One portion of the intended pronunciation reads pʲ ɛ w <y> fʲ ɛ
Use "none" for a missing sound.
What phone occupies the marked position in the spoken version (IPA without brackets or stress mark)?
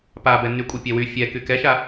y